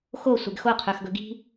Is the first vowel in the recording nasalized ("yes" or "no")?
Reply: no